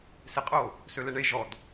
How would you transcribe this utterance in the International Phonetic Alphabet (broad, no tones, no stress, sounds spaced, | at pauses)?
s e qʼ o | s ø l e ɳ e ʒ ɔ d